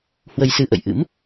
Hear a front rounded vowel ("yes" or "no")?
no